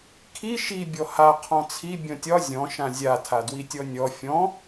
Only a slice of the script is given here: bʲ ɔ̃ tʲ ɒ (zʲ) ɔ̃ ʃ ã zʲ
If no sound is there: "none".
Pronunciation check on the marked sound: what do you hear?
zʲ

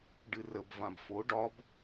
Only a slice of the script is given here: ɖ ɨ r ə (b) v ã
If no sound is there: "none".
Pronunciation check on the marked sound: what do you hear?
b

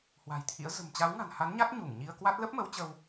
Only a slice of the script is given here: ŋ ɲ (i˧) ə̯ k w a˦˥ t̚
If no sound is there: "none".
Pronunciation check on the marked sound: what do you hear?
i˧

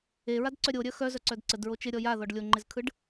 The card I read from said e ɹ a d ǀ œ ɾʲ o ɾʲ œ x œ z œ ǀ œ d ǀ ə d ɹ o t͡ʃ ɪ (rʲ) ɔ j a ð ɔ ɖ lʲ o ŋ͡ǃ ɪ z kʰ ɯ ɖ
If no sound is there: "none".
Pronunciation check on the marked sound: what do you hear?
ɾʲ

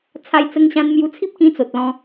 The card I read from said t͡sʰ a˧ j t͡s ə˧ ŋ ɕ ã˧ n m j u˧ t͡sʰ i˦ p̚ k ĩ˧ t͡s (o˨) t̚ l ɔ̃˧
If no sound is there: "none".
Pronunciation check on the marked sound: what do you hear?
o˨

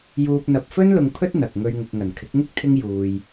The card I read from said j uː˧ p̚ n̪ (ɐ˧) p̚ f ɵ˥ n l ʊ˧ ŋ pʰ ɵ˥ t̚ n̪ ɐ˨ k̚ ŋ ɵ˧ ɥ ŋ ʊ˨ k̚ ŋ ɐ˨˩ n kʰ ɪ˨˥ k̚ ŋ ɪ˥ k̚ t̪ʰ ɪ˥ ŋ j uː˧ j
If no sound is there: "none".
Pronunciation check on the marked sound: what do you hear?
ɐ˧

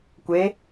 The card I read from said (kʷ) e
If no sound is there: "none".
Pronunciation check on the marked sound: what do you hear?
kʷ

